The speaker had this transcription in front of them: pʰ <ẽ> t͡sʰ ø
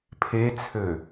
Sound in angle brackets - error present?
yes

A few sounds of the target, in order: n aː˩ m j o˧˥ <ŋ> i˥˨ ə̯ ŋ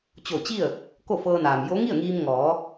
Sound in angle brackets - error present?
no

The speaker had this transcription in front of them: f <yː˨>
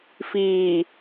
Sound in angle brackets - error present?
yes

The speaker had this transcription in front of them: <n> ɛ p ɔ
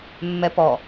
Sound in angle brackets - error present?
yes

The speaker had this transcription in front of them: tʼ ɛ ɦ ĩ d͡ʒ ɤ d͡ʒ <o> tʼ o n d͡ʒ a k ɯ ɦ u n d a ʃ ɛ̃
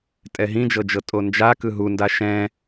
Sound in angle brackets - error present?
yes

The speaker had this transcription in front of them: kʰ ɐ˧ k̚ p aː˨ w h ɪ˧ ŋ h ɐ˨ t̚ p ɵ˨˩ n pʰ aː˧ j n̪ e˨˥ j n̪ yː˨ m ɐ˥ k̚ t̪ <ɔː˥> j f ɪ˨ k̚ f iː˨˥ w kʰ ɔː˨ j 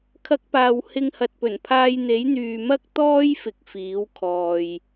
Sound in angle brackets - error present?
no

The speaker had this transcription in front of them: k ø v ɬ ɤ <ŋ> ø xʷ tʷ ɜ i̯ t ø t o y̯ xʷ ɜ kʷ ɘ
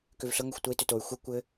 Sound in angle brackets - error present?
no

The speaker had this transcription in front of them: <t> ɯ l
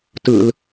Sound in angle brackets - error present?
no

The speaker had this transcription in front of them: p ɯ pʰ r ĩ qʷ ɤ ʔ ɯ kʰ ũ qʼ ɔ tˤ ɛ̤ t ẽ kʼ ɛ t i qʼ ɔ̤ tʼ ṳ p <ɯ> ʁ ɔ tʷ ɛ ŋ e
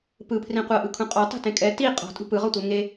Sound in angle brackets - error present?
no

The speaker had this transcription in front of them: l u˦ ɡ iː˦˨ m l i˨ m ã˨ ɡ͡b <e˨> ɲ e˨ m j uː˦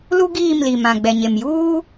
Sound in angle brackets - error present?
yes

